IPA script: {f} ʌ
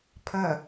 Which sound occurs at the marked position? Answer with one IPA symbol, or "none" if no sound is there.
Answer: pʰ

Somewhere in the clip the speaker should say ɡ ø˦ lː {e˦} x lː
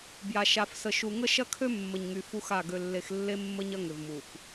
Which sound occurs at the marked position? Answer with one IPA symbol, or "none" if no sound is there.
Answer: e˦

